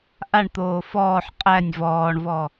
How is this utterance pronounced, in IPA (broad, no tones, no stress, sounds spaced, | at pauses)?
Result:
ʔ a ɳ t̪ oː f ɔː ħ qʼ æ nʲ v ɔː ɳ v ɔ